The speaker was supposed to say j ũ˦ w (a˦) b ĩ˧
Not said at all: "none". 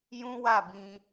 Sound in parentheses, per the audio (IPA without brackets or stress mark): a˦˨